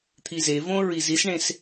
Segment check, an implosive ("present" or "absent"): absent